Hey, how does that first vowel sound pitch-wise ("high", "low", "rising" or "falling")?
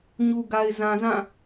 low